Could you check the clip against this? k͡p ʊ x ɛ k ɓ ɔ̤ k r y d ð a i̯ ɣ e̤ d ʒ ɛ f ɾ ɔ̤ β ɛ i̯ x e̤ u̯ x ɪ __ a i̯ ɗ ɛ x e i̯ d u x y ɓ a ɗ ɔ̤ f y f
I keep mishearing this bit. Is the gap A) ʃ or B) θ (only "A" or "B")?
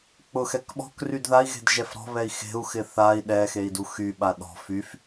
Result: B